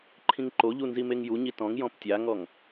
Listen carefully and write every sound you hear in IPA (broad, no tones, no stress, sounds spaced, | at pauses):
ǃʰ ĩ ŋ ǃ o ʎ u n z i m e ŋ j u ɲ i t ɔ̃ ŋ j ɔ̃ p tʲ a ŋ ɔ ŋ